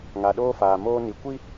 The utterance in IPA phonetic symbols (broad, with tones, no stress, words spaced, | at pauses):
ŋa˨ɗoː˦faː˨ moː˦ni˨ kʷi˦